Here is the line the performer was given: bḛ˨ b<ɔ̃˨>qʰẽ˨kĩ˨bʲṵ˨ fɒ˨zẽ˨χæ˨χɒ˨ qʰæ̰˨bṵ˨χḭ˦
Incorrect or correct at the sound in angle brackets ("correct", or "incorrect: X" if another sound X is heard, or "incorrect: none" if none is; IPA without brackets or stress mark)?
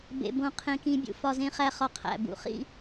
incorrect: õ˨